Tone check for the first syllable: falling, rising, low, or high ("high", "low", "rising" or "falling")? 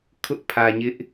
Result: high